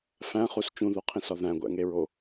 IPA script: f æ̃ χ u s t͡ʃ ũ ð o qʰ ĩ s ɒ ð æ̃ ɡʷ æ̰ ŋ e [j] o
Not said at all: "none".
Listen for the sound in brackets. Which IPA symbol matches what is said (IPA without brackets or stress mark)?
ɹ